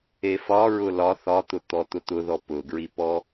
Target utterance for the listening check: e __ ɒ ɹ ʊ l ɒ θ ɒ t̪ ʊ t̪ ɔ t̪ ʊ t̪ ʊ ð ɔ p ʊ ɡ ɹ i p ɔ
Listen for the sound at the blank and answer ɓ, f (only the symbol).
f